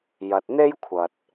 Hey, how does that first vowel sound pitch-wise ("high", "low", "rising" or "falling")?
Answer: low